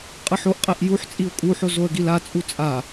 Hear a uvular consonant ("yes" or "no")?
yes